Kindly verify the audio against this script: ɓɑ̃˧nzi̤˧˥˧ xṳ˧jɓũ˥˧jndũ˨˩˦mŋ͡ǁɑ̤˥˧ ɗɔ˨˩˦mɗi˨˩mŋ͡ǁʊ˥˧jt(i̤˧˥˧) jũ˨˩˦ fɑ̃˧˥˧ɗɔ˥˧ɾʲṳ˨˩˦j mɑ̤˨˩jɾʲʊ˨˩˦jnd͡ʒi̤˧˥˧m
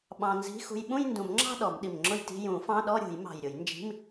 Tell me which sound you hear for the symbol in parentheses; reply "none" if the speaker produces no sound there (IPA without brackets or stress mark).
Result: i̤˧˥˧